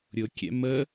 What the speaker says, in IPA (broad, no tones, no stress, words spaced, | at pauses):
ɾʲʊ kʲɛ̰mə